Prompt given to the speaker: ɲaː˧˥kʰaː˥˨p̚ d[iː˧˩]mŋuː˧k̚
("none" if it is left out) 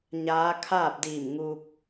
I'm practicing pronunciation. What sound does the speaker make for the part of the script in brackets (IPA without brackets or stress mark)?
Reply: iː˧˩